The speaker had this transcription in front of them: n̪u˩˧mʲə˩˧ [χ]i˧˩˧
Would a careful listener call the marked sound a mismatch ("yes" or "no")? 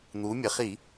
no